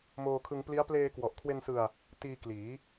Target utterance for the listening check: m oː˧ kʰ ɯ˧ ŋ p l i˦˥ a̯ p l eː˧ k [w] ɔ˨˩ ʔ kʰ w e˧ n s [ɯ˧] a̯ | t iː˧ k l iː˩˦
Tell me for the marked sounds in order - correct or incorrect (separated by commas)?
correct, correct